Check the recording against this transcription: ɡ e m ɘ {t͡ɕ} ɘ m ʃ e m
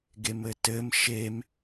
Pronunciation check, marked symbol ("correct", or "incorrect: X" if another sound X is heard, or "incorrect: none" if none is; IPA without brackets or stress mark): incorrect: t